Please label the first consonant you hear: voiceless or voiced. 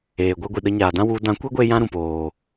voiced